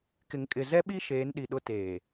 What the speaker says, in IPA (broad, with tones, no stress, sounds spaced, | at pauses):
k ɪ˨ ŋ kʼ ɪ˨ z ɛ˦ ɓ i˦ ʃ eː˨˦ n ɗ i˨ ɗ ʊ˦ t eː˨